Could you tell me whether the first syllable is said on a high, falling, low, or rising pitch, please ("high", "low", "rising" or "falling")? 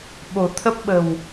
low